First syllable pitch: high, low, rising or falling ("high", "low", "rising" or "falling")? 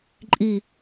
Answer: falling